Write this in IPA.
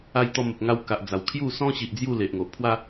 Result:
a˧ j t̪ ɔ˧ m ə˨ p̚ ŋ a˧ w k a˨ ʔ d͡z a˨˩ w kʰ j u˥˧ s ɔ̃˦ ɕ i˨ ʔ d͡z j u˥˧ l e˨ ʔ ŋ o˨ ʔ pʰ w a˦

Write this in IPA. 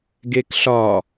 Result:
ɡ e k ɬ ɒ

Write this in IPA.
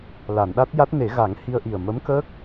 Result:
l a˨˩˨ n ɗ a˦˥ t̚ j a˦˥ t̚ n e˨˩˦ ɣ a˨˩˦ ŋ h i˧ ə̯ ʔ i˨˩ ə̯ m ə˧˥ m k əː˦˥ k̚

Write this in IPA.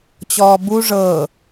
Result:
t͡ɕ ɔː b u ʐ ɤː

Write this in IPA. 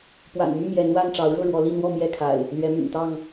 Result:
p w a̰˨˩ n m y˥˨ m j ɛ˨˦ n w a˥˨ n ʈ͡ʂ ɑ˨˦ ʊ̯ ɻ ɤ˥˨ ɻ w ɔ˨˦ l i˥˨ n̪ w ɔ˥˨ m j ɛ˥˨ kʰ a̰˨˩ ɪ̯ | l ɥ ɛ˨˦ m y̰˨˩ n t̪ ɑ˥˨ ŋ

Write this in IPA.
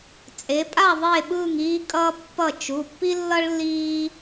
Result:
t͡sʼ e˩˧ pʼ a˦˨ ðˤ e˦˨ ɓ ɯː˦˨ ŋ iː˥ kʼ ʌː˥ pː ʌ˦˨ t͡ʃ u˩˧˩ pː i˥ lː ʌ˥ ɭ lː iː˥

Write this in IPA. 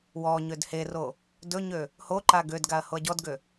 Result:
w ɔ ɲ ø d h e r o | d ɵ ɲ ø | h o ǃ a ɡ ø d ɡ a ɐ̯ h o ɐ̯ ɟ ɔ d ɡ ø

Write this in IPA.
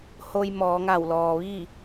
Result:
h o˧ j m ɔː˩˧ ŋ a˧˩ w l ɔː˩ ʋ iː˥˨

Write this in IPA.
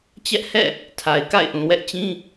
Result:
t͡ɕ ɛ˦ ʔ h ɛ̰˦˨ | tʰ a˨ ɪ̯ k a̰˦˨ ɪ̯ ʔ ũ˨ w ɛ˦ ʔ t͡ɕ ĩ˦

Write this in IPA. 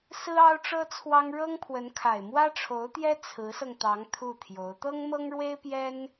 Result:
s ɹ̩˥ ɑ˥ ʊ̯ ʈ͡ʂ ɤ˥ t͡sʰ w ɑ˥ ŋ ɻ ɤ˥ ŋ pʰ w ə˧˥ n kʰ a˨˩ ɪ̯ m w ä˥ ʈ͡ʂʰ o˧˥ ʊ̯ t̪ j ɛ˥ t͡sʰ ɹ̩˧˥ s ɤ˧ ŋ t̪ ɑ˧˥ ŋ t̪ʰ u˥˩ t̪ʰ j o˧˥ ʊ̯ t̪ ɤ˥ ŋ m ɤ˥ ŋ ɻ w e˥ ɪ̯ p j ɛ˥ n

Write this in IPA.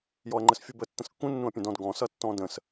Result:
j ɔ ɐ̯ ŋ͡ǃ ə s fʲ u b ə tː ə̃ s kː ũ nː ũ ɐ̯ pʲ ə̃ d ɔ̃ d ɡ ɔ̃ s ʌ tː ɔ̃ d ə̃ s

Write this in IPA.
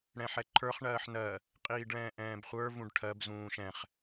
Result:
ɽ ɛ̃ ħ ɛ ǃʰ ə˞ χ ɳ ɜː ħ n ɜ | qʼ iː ɖ ɭ ɛ̃ː ʔ ɛ̃ː b χʷ ə˞ v ũ ɖ ʈʰ ɜ b z ũː ʃ ɛ̃ χ

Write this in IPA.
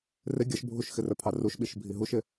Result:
r ɪ ɡʲ ʌ ʃ bʱ u ʃ x ɪ r ə˞ pʰ ɑ r u ʃ ɓ i ʃ bʱ i ɦ u ʃ ɪ

